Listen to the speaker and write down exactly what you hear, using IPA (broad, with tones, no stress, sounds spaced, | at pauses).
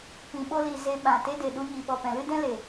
p ĩ˨ ɓ o˧ l i˨ z e˧ ɓ ã˨ t e˦ d e˨ ɗ u˧ ɲ i˨ ɓ ɔ˨ p ɛ̃˨ l ɨ˦ d ɛ̃˦ l e˨